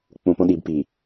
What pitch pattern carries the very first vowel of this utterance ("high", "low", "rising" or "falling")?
low